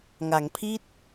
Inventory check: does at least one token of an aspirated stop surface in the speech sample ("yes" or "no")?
yes